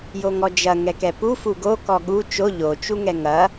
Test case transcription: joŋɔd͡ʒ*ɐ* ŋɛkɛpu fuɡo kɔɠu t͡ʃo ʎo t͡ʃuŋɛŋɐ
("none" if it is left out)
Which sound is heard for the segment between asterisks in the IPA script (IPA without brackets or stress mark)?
ɐ